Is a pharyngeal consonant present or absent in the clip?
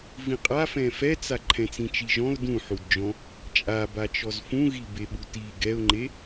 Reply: present